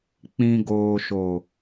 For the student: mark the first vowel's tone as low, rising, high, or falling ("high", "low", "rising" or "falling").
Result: low